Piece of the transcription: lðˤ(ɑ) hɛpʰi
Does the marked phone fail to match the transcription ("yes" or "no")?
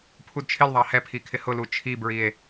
no